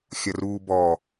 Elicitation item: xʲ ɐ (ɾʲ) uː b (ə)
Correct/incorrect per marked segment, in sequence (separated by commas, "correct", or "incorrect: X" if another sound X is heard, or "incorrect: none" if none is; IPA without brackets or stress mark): incorrect: r, incorrect: ɔ